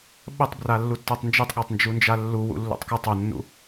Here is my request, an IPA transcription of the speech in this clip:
ɓ ə tˤ b r a lː u tː a tˤ n d͡ʒ ɤ tˤ ɠ a tˤ n d͡ʒ u n d͡ʒ a lː u w ṵ lː ṵ tˤ k ɤ tˤ o nː ṵ

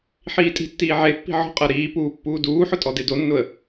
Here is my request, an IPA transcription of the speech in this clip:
ħ iː tʼ i̤ tː iː ʕ e pː i̤ ʕ ɔ̤ qʼ ɜ ɾ iː p uː pː uː d uː ħ ʊ tʼ ɔ d e d o nː ʊ ə̯

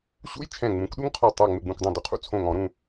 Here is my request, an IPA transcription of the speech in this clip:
ɕ ṵ˦˥ j t͡ʃʰ ɛ̃˧˩ ŋ͡m ũ˩˥ k ɗ u˦˥ ŋ qʰ ɔ˧˩ tˤ a˧˩ ŋ͡m ɪ˧˩ ɡ͡b ũ˧˩ k dˤ õ˧˩ d u˧ qʰ ṵ˦˥ t͡sʰ õ˧˩ ŋ ɔ̃˨˩˦ ɾ ũ˧

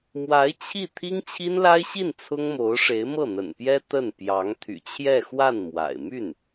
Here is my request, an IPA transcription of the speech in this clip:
m w a˧˥ ɪ̯ t͡ɕʰ i˥˩ t̪ʰ i˥ ŋ t͡ɕʰ i˥ n l a˥ ɪ̯ ɕ i˥˩ n t͡sʰ ʊ˥ ŋ m o˧˥ ʊ̯ ʂ e˧˥ ɪ̯ m ɤ˥˩ n̪ ə̰˨˩ n p j ɛ˥ t̪ ə˥˩ n p j ɑ˧˥ ŋ t̪ʰ y̰˨˩ t͡ɕʰ j ɛ˥˧ x w a˥˩ n m w a̰˨˩ ɪ̯ m y˥˩ n

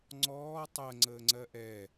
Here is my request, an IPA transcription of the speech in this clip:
ŋ͡ǀ ɔː tˤ ɜ ŋ͡ǀ əː ŋ͡ǀ ɜ ʔ ɛ

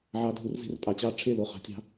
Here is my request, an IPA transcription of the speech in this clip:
ʕ ɑ˨ dʱ u˨ r z e̤˦ r pʼ ɑ˨ t͡ɕ ɑ˦ ʈ͡ʂʰ e˦ l o˨ χ ɑ̤˨ tʲ ɑ̤˦

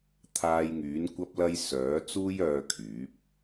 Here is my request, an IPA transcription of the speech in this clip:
t̪ʰ aː˧ j ŋ yː˨˥ n kʷ ɐ˧ p̚ l ɐ˧ j s œː˨˥ t͡s uː˥ j œː˧ kʰ yː˨˥ p̚

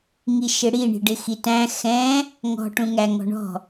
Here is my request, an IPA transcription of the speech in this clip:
ŋ i ʃ ɪ ɽ i ɳ i̤ ɖ ɪ x i t æ̃ x ɛ̃ | ŋ ɔ̤ ʈ ũ ŋ æ ŋ ɔ̤ ɳ ɔ̤

